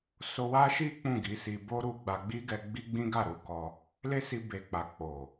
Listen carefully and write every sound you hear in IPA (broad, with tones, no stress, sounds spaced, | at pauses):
s o˧ w a˦ ʃ i˦ k͡p ũ˦˨ ɡ i˨˦ s i˧ b o˦ ɾ u˧ ɡ͡b a˧ ɡ͡b i˦ ɡ ɛ˧ ɡ͡b i˦ ɡ͡b ĩ˦ ɡ a˦˨ ɾ u˧ k ɔ˧ | l e˦ s i˧ b e˨ k͡p a˨ k͡p o˨